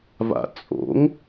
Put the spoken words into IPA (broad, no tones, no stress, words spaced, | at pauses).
va̰t͡sʼo̰ŋ